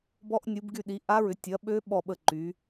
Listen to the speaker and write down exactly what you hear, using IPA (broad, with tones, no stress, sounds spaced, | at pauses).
b ɔ˦˥ ʔ nʲ u˨˦ b ɡ y˦˨ ɗ i˨˦ ʔ a˦˥ ɹ ʏ˨˦ tʲ ɐ˨˦ ɓ ø˦˥ ɓ ɔ˦˨ ɓ ə˦˨ ǃ y˨˦